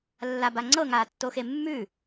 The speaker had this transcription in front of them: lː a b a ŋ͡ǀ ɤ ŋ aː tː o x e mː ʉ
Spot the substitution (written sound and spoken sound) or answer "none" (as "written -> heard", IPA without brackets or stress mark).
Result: none